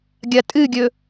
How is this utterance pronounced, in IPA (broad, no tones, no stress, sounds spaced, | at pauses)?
ɡʲ ɐ tʼ ɨ ɡʲ ɵ